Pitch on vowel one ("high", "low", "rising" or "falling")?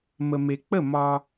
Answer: low